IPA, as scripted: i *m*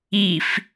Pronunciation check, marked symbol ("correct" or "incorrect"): incorrect